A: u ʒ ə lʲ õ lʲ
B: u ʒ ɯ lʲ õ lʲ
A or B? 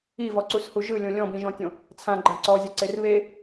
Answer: B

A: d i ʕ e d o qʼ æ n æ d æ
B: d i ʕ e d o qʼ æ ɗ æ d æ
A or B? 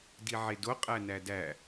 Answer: A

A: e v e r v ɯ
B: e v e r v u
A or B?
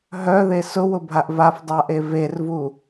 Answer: B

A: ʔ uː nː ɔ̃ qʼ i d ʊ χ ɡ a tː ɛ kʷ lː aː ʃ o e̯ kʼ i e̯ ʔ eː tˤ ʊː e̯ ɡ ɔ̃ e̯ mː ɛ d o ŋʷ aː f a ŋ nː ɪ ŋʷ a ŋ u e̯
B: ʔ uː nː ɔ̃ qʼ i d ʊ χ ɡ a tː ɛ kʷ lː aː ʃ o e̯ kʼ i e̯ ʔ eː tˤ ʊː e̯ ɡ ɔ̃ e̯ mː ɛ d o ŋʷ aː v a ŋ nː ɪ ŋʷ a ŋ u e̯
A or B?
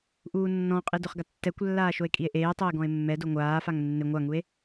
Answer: A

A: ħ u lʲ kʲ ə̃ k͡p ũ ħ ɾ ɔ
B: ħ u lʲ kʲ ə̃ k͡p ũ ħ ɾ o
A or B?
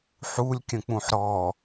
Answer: A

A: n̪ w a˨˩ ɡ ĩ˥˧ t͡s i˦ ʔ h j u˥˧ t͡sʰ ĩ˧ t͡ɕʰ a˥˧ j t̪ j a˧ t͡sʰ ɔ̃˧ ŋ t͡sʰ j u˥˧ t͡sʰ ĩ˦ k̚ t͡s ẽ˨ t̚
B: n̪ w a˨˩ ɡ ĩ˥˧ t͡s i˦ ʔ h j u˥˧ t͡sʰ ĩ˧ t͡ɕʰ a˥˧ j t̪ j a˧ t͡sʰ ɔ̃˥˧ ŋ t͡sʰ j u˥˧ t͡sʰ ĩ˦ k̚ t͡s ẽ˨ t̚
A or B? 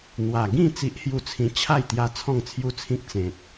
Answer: B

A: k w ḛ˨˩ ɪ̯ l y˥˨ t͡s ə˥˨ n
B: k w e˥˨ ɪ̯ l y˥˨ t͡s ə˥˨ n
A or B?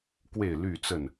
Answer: B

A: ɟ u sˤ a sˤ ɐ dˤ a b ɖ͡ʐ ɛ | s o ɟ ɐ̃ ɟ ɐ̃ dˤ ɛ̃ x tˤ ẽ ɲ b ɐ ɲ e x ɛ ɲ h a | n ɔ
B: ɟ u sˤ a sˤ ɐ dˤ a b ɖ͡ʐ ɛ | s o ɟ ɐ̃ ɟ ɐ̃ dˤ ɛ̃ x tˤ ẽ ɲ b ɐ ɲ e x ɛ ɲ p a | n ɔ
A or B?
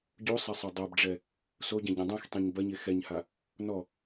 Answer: A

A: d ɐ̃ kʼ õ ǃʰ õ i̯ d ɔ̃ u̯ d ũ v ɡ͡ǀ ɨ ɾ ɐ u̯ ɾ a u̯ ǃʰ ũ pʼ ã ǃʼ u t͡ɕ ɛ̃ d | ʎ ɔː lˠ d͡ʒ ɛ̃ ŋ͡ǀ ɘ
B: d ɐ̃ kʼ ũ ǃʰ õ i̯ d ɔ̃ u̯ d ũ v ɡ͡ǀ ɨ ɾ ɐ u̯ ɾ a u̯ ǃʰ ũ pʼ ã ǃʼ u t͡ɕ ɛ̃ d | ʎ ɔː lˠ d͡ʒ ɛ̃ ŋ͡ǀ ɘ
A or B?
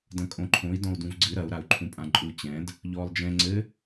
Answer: A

